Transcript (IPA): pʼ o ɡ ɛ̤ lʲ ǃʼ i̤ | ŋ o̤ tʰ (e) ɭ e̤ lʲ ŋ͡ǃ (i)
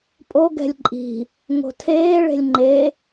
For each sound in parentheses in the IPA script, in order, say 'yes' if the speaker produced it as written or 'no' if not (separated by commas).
no, no